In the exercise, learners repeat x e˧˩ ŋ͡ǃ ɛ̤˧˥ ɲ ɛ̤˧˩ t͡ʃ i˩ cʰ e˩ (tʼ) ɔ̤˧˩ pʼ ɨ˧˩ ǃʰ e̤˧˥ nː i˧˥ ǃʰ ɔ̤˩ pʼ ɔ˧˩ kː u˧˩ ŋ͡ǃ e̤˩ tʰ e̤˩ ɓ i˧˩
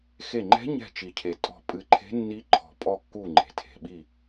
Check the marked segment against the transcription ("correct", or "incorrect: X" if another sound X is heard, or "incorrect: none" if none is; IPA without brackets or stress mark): correct